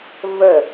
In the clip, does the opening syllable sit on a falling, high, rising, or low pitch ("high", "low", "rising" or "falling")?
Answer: falling